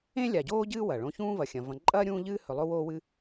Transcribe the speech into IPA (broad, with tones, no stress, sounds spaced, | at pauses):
ẽ˥ lʲ a˨ ɟ oː˥ ɟ ɨː˥ w ɐ˩ ɭ õ˦ ç ũː˥ v ɐ˨ xʲ ɐ̃˨ v ɐ̃˨ ǃʼ ɐː˥ ɾʲ ũː˥ ʎ ɨː˥ h ɵ˨ lˠ o˦ w oː˦ w ɨ˦